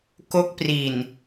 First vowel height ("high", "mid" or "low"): mid